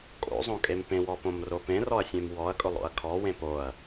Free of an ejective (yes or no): no